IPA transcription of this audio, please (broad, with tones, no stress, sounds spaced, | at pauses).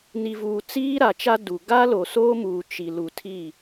n i˨ v uː˨ t͡s iː˦ ɾ a˨ t͡ʃ a˦ d u˨ ɡ a˦ l o˨ s oː˦ m uː˨ t͡ʃ i˨ l u˨ tʰ i˦˨